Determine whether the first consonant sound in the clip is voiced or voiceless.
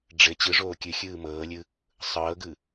voiced